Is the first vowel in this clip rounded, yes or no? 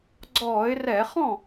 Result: yes